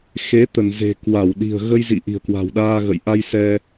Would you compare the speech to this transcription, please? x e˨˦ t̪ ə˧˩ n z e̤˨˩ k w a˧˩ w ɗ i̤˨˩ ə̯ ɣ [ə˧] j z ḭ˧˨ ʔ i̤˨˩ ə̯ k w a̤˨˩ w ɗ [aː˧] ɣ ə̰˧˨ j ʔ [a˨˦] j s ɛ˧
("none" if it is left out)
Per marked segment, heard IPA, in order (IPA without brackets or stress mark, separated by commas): ə˧, aː˧, a˧